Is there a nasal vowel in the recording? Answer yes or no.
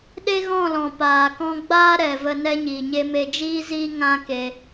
yes